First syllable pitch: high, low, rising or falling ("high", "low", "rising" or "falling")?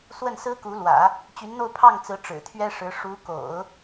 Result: falling